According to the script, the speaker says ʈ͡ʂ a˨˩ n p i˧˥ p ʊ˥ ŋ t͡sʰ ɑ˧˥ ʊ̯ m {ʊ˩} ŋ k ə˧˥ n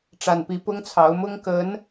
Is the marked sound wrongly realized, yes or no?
yes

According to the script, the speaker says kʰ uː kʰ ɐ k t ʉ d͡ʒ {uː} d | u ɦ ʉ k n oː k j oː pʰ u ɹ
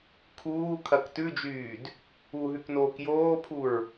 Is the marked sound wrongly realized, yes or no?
yes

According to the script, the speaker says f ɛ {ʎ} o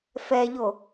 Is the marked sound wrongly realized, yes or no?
no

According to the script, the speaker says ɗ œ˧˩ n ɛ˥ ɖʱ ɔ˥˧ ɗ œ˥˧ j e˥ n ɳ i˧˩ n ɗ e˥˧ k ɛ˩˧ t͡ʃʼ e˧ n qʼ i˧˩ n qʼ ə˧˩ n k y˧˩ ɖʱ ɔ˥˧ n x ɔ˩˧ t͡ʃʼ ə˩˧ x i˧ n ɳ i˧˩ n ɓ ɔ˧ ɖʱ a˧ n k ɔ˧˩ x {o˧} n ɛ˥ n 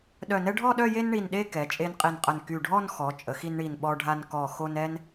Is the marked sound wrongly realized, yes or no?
no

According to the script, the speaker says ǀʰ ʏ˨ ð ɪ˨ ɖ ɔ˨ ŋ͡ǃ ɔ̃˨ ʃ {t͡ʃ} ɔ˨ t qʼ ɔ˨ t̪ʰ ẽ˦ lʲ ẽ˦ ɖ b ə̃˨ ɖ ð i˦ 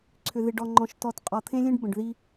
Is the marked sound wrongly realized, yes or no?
yes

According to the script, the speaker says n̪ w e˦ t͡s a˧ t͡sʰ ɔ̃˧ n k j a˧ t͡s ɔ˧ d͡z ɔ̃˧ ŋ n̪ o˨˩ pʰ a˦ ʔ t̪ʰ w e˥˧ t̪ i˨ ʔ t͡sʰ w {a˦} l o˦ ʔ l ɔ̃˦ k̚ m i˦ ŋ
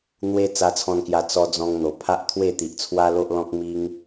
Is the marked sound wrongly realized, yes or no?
no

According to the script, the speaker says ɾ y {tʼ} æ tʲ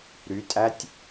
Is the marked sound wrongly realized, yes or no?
no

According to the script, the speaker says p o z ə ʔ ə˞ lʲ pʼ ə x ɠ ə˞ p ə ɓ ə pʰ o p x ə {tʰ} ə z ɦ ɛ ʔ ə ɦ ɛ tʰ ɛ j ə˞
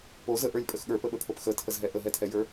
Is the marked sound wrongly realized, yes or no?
no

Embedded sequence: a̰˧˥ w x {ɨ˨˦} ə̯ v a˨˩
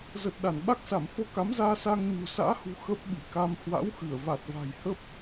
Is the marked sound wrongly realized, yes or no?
yes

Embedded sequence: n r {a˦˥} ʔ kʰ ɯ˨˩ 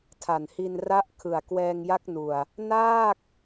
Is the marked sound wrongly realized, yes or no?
no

